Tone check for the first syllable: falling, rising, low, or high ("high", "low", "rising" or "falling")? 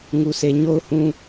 low